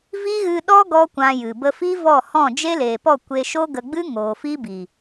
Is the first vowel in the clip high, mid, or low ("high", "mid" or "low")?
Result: high